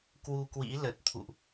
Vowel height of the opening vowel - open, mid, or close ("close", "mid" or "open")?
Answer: close